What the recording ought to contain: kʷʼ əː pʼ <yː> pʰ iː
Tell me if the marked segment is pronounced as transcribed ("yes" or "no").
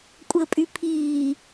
no